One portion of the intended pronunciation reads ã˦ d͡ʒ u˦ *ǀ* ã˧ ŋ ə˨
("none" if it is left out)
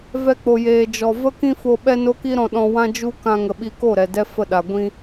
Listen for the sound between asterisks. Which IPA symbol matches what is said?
k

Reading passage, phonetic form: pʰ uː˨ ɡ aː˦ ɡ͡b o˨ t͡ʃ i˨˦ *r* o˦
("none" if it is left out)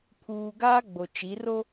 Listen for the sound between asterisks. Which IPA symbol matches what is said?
r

